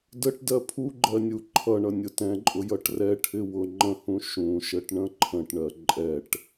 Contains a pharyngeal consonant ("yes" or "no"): no